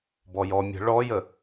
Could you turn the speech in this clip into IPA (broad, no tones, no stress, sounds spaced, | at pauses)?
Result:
b ɔ j ɔ mʲ ə̤ ɭ ɔ j ə